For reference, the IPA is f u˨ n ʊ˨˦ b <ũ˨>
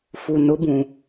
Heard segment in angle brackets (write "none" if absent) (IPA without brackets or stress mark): ũ˨